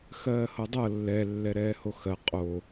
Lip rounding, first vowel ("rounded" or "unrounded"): unrounded